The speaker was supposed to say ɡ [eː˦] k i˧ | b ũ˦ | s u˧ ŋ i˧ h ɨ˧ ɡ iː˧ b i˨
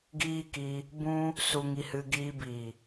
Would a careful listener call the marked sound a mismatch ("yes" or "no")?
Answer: yes